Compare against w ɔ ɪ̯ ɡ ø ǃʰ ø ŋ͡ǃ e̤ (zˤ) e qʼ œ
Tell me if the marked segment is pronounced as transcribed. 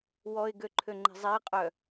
yes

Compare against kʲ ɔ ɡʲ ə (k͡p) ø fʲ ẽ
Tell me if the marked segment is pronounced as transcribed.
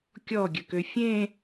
no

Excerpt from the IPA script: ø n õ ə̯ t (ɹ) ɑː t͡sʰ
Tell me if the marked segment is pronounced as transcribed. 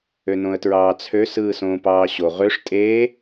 yes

